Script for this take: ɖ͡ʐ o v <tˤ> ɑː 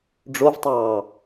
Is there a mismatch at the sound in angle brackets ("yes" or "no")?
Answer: no